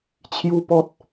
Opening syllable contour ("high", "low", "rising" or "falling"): high